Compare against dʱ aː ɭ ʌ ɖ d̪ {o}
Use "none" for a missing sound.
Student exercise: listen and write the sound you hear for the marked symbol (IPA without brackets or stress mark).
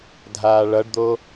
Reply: o